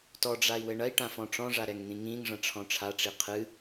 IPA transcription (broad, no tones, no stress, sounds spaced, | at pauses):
t ɔ ɖ͡ʐ a i̯ w ɘ ɳ ɐ i̯ ʈ ã f ɔ̃ ʈ͡ʂ ɔ̃ ʐ a ɾ ɛ ŋ n̪ ĩ ŋ ĩ ŋ ʐ ɐ̃ ʈ͡ʂʰ ɔ̃ ʈ͡ʂʰ a ʈ͡ʂ i qʰ ɨ